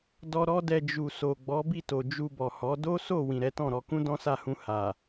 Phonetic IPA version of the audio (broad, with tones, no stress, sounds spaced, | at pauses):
d ɔ˧ ɾ ɔ˧ d ɛ˨ d͡ʒ u˨ s o˨ ɡ͡b ɔ˨˦ b i˦˨ t o˨ d͡ʒ u˧ b ɔ˨ h ɔ˨˦ d o˦ s o˦˨ w ĩ˨ ɾ ɛ˨˦ t ɔ̃˦˨ ɾ ɔ˧ k ũ˦ d ɔ̃˦ s a˦˨ h ũ˧ h a˨